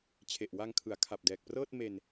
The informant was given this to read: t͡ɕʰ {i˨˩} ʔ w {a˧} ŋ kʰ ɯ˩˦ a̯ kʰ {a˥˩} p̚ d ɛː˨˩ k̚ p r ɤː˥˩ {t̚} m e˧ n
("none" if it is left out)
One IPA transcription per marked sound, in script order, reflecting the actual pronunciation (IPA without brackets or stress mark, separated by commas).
e˨˩, a˧, a˨˩, t̚